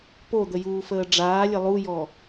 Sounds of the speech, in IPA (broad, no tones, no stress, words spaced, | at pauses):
pod̪əjuːfəː ɖ͡ʐaːlʲə lˠujɔ